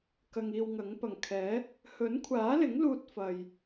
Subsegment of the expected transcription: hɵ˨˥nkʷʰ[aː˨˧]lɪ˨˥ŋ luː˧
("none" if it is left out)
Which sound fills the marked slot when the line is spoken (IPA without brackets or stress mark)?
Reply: aː˨˥